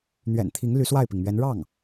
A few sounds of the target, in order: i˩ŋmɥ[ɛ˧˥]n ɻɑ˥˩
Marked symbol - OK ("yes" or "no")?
yes